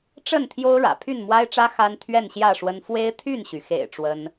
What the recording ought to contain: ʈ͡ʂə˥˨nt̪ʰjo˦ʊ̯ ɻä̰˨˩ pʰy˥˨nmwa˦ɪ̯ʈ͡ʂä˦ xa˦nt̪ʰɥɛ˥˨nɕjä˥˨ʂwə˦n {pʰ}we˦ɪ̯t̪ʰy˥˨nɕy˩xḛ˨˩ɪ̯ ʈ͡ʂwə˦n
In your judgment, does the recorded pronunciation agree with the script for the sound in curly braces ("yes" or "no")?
no